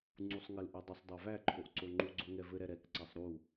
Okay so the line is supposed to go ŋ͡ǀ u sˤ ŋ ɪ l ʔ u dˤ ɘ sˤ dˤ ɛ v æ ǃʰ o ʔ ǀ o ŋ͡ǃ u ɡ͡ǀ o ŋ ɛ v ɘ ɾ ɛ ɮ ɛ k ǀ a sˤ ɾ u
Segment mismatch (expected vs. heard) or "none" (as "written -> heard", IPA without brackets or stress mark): ɮ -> ɾ